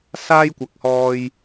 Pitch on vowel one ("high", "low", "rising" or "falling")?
high